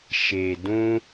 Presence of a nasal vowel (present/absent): present